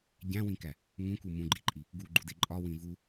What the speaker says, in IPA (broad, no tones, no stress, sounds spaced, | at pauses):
ɟ æ̃ w ĩ k æ | ŋ ũ k u m ũ ɡ͡ǃ i ǃʼ i | ɡ u ɡ͡ǃ u d e ǃʼ ɒ w ĩ v u